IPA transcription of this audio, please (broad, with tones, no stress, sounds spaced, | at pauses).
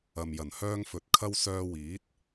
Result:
ɐ˨ m j ɐ˨˩ n h œː˧ ŋ f ɵ˨˥ t̚ kʰ ɐ˧ w s œː˧ w iː˨˥ t̚